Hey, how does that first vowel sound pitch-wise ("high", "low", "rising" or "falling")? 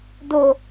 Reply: low